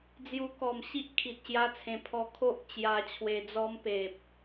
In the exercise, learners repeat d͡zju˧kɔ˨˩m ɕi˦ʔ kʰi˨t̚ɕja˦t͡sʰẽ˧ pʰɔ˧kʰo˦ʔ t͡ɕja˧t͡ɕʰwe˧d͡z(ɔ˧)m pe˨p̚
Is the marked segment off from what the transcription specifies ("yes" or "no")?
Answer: yes